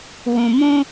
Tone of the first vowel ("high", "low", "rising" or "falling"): low